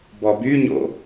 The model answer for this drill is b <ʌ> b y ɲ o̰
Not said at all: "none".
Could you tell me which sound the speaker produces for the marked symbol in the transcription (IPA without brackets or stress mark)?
ɔ